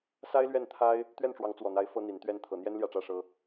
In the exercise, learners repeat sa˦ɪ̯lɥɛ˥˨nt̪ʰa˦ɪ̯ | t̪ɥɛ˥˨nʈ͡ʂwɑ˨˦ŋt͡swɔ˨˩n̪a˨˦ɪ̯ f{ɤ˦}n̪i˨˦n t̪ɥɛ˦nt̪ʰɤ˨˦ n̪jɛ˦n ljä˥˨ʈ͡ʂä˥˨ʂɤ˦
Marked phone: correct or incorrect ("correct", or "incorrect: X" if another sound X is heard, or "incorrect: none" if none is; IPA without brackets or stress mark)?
correct